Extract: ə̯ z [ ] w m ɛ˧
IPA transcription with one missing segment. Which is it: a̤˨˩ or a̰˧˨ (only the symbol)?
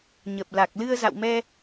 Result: a̰˧˨